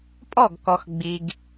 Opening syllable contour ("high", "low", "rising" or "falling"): falling